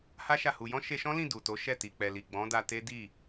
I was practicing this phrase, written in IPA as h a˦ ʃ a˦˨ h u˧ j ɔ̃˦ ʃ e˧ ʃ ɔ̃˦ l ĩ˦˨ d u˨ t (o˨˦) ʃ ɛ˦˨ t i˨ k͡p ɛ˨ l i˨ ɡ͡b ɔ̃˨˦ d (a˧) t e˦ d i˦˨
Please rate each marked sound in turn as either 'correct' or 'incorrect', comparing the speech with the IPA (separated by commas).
correct, correct